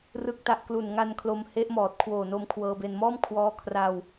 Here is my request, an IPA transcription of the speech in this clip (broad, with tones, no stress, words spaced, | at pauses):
rɯ˨˩k̚ta˨˩ʔ klu˨˩n ŋa˧nkʰlo˧mhe˦˥ʔmɔː˨˩t̚ kʰwoː˨˩no˧mkʰwɤː˧be˧n mɔː˥˩mkʰwɔː˦˥ kʰra˧w